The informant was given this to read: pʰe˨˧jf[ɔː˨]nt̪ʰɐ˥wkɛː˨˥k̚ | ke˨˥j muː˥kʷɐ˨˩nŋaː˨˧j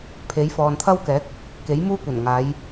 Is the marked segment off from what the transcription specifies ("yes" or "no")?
no